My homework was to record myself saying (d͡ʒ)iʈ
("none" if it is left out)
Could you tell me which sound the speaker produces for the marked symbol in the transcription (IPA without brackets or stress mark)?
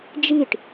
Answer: d͡ʒ